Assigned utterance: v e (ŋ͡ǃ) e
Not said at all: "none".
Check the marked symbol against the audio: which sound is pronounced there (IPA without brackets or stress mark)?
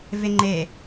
ŋ͡ǃ